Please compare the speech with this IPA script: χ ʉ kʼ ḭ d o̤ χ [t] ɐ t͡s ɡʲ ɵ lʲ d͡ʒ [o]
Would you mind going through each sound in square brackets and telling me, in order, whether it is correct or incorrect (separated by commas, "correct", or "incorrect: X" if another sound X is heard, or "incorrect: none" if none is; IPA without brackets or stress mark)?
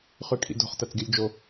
correct, correct